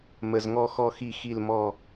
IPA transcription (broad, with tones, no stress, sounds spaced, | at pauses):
m ə˨˩ z ŋ ɔ˦˨ x ɔ˦˨ x i˦˨ x i˦˨ l m ɔ˦˨